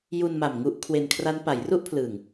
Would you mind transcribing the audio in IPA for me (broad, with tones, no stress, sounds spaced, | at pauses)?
j u˧ n m a˨˩ m ŋ u˦˥ ʔ kʰ w e˧ n kʰ r a˦˥ n p a˩˦ j r u˥˩ ʔ pʰ l ɯː˨˩ ŋ